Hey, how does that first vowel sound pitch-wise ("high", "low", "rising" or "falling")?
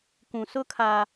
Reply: low